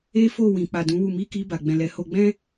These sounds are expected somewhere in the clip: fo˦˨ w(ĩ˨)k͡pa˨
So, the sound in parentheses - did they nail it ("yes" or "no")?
yes